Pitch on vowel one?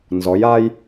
rising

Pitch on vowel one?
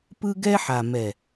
high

